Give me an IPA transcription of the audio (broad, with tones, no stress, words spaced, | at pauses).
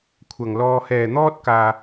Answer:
kʷʰɐ˨˩ŋlɔː˨ hɛː˨˩n̪ɔː˧t̚ kaː˨